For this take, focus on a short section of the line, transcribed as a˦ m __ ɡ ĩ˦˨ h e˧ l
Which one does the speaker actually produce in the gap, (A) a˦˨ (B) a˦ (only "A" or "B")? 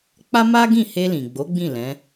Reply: B